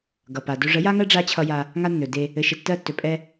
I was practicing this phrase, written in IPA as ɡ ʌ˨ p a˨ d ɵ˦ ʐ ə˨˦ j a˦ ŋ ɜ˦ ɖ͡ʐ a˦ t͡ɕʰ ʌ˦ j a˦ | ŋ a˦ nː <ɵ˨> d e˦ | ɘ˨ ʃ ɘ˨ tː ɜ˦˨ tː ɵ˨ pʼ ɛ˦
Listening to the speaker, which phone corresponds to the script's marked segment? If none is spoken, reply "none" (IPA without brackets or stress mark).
ɵ˨